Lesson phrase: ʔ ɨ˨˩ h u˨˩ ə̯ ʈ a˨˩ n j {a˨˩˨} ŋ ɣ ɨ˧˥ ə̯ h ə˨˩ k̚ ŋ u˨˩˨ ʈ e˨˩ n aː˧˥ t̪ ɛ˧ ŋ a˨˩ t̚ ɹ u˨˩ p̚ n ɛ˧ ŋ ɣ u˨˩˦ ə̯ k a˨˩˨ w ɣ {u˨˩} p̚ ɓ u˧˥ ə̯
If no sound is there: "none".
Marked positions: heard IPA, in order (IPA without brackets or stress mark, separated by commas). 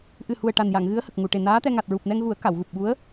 a˨˩˨, u˨˩